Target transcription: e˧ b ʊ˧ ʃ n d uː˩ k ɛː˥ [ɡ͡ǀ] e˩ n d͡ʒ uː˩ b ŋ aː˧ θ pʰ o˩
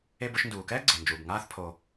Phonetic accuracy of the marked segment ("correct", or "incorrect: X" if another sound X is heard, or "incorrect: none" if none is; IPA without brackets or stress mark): correct